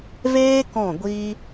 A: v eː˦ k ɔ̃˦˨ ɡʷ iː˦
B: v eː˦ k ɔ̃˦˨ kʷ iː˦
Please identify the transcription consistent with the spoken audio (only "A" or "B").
A